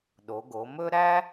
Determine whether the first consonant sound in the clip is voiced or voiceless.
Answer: voiced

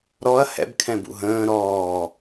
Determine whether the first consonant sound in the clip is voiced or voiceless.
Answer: voiced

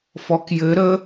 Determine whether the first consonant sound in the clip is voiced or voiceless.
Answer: voiceless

